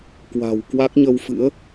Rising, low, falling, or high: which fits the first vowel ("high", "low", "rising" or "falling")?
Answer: low